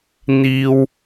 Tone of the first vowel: high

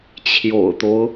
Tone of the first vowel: low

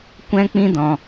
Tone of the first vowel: high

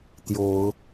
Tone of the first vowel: rising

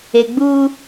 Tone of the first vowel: low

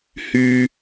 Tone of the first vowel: high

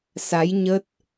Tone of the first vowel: rising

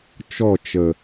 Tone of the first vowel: falling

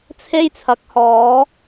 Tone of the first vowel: high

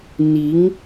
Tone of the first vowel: rising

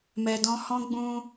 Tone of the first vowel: low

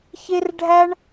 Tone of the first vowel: high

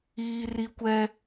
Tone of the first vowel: high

